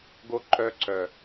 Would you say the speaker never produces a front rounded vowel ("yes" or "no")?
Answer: no